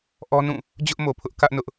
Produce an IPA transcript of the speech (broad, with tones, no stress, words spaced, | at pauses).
ʔɔ˦nũ˦˨ | d͡ʑʊ˦ʔmo˨pʰʊ˦ʔ kä˦ʔ nʊ˦ʔ